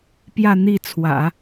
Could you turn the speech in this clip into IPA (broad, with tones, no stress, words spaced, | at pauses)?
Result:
pjä˥˧ n̪i˥˩t͡sʰwä̰˨˩˦